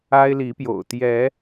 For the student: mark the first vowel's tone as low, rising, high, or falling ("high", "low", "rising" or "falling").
high